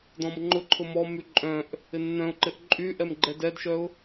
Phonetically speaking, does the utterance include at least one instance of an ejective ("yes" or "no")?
yes